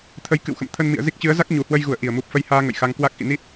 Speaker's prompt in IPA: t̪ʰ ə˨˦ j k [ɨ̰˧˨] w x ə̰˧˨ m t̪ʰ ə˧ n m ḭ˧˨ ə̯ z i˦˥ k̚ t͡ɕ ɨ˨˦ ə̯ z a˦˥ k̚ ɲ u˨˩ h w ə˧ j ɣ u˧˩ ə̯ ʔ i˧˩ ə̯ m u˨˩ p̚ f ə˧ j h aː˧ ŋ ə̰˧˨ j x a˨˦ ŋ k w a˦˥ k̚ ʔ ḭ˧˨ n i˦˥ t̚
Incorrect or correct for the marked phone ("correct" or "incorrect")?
correct